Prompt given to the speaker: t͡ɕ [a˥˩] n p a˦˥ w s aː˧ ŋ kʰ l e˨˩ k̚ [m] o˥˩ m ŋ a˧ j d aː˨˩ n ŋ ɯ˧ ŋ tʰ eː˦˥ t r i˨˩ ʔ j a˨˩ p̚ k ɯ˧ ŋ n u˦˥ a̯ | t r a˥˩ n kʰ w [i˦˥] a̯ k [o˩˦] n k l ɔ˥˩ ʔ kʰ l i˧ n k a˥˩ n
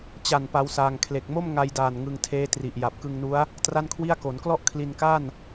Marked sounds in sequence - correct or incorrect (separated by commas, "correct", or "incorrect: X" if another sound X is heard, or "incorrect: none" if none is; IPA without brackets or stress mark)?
incorrect: a˨˩, correct, incorrect: i˥˩, correct